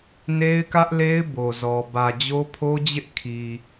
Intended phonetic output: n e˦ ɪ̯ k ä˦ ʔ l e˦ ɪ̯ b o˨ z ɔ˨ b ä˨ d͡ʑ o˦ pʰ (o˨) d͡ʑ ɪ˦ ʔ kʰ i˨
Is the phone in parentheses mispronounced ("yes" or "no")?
yes